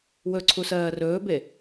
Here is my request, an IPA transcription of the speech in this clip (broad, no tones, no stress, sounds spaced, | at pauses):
w ɵ ǀʰ u s ɜː r ɵː b e